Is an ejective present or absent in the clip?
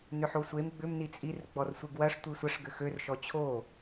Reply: present